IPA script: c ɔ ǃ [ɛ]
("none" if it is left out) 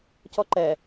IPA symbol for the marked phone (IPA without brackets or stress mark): ɛ